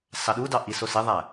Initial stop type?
implosive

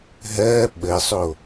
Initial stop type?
implosive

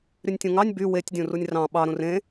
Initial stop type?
plain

